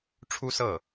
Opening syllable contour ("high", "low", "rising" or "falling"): high